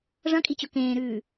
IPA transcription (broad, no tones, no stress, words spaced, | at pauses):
ʐɐ̃kʼit͡ɕɵ kẽːɾʉː